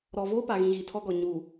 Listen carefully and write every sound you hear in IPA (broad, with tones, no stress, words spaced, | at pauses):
ɾɔ˨voː˦pa˨ɣĩ˨ ɣi˨tʰɔ˦ɡɔ˨ ɲuː˨